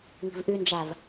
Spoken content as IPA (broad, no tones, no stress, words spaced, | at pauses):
ŋi̤vʔynd͡ʒæv